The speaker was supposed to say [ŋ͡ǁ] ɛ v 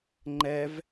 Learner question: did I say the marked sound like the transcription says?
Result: no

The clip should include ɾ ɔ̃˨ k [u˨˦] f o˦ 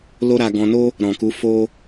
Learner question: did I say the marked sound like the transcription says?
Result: yes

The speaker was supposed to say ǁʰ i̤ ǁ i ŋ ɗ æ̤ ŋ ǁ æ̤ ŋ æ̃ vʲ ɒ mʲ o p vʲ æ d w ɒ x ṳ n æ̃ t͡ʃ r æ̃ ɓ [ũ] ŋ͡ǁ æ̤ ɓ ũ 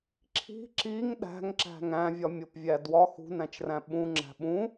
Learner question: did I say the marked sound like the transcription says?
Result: yes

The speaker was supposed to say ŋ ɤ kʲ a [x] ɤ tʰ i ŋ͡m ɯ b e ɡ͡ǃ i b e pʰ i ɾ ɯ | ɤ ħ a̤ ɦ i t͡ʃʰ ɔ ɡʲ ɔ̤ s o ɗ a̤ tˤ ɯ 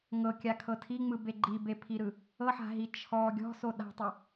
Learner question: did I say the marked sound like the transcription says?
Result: no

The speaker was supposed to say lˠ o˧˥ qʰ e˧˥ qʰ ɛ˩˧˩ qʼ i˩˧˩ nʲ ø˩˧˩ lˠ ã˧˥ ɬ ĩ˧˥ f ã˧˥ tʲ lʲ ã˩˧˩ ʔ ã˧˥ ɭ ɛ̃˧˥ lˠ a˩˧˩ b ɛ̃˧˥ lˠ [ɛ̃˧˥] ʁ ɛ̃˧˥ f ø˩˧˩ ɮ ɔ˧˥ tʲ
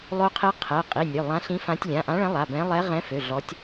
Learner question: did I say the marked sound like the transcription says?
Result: no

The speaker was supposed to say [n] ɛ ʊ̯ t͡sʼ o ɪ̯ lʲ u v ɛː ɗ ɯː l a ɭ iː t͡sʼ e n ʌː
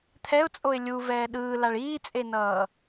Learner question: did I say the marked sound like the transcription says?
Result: no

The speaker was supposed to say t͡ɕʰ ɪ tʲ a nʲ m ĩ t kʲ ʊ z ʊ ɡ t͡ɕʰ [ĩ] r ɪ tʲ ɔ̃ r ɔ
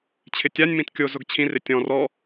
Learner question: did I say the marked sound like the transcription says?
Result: yes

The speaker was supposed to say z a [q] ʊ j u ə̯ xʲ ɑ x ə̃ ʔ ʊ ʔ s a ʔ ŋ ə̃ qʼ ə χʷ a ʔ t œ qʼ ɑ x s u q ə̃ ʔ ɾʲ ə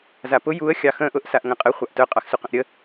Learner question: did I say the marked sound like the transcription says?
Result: no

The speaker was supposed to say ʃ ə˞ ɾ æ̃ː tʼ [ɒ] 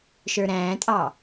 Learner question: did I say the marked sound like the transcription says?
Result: no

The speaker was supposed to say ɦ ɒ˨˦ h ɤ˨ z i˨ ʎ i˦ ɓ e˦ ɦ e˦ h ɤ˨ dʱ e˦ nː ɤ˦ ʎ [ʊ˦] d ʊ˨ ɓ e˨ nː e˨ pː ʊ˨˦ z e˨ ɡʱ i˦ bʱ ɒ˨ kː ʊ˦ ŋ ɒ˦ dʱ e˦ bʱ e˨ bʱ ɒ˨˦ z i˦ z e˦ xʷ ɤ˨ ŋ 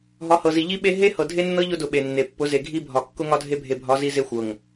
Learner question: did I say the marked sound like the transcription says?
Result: yes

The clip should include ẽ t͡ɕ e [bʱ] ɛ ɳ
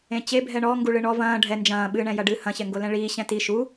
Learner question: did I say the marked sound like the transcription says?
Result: yes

